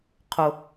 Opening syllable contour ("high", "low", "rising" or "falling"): low